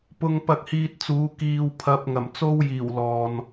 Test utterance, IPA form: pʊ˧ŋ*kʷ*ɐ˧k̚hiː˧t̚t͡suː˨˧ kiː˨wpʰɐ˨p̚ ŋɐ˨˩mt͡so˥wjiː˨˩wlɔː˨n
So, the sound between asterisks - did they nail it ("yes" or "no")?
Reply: no